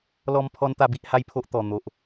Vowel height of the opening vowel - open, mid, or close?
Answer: mid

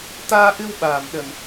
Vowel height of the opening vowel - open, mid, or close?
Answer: open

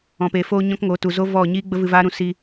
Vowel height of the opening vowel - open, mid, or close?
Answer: mid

